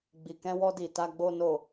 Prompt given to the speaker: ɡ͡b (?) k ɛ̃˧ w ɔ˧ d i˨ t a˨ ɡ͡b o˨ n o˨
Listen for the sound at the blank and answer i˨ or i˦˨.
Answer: i˨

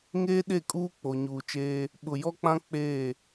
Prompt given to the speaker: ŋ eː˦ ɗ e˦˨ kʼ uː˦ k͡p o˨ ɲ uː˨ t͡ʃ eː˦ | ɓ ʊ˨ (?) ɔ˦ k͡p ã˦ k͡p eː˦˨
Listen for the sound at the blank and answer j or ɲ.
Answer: j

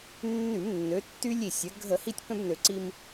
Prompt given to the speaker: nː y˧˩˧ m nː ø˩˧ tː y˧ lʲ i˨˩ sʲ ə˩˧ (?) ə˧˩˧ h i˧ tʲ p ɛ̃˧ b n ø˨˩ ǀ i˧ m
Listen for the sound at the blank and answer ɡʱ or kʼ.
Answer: ɡʱ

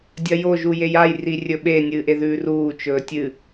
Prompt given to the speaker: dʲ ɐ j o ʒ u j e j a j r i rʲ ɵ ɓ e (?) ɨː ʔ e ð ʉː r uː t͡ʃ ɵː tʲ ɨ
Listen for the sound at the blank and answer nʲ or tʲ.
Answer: nʲ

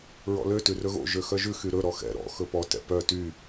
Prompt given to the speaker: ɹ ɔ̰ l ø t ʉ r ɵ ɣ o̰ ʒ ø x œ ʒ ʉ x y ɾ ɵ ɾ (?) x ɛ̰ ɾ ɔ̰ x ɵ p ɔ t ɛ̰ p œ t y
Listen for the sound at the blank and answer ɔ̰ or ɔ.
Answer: ɔ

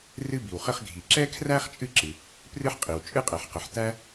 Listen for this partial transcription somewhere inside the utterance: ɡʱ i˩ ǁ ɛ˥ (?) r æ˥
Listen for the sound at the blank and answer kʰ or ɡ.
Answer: kʰ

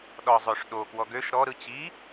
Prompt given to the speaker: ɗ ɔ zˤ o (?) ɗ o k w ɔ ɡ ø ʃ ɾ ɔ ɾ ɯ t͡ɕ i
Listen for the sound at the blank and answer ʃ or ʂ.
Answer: ʂ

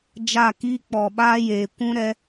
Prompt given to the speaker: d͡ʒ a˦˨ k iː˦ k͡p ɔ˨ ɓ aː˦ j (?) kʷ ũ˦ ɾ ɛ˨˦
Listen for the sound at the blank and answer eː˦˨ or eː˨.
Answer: eː˨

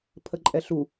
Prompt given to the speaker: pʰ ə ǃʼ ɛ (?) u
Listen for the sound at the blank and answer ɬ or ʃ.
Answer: ɬ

